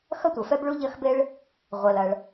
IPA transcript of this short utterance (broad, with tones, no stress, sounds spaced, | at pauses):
x ɐ˥ tʷ ɐ˩ f ɛ˥ b ɭ u˥ ʎ ɐ˥ x b e˥ ɭ | ʁʷ ɛ˩ l ɐ˩ ɭ